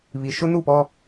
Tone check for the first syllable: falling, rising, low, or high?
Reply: low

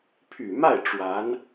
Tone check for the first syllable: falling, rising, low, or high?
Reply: low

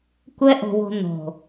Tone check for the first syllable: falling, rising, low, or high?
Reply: high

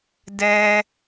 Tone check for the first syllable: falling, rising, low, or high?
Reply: high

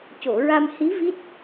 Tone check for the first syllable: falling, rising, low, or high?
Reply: low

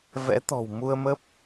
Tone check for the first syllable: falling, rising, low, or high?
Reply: rising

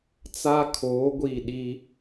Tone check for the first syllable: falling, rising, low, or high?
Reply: high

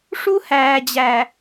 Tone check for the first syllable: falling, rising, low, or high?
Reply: high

